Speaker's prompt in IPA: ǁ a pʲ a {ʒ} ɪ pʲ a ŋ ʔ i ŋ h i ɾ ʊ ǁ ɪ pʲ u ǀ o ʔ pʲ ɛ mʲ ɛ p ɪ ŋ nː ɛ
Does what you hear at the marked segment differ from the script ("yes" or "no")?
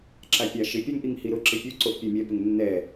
yes